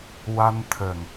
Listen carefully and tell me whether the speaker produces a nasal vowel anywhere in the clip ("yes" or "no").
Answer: no